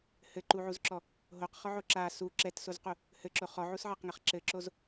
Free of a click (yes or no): no